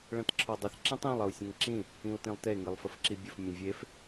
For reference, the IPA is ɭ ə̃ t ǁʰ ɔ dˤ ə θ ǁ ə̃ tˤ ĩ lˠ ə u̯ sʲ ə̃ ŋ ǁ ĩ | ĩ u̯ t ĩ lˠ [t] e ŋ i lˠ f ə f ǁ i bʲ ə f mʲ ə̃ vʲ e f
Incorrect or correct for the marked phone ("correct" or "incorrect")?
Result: correct